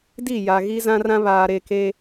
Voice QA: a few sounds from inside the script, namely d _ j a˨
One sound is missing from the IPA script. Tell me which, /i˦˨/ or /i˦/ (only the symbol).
i˦˨